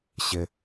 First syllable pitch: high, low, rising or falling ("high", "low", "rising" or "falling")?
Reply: high